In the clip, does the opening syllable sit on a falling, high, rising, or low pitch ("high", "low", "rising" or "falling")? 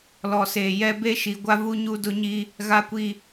low